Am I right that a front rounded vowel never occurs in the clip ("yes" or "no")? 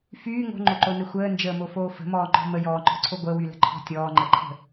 no